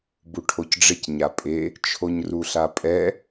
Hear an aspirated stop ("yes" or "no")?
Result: yes